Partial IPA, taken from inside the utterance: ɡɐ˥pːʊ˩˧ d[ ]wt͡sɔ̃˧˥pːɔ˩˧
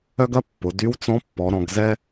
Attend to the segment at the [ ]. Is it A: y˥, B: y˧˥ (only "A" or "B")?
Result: B